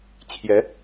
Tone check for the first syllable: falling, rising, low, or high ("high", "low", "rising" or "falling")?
rising